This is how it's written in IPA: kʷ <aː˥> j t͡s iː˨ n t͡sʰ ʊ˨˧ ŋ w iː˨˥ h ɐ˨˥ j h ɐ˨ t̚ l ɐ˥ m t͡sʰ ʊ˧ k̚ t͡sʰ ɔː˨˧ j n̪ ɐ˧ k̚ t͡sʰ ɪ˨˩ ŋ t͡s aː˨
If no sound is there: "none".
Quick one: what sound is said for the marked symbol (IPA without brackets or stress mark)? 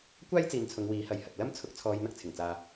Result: aː˥